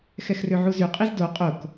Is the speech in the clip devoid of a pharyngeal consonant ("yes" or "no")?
no